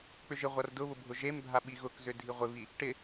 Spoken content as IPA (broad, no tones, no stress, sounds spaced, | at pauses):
k͡p ʏ ʒ ɪ ʁʷ a r d ʊ β ʊ bʱ ʊ ʒ e m bʱ a ɓ i ɣ ʊ k z ʏ dʱ i ʁʷ ɪ β i | ʈ ɪ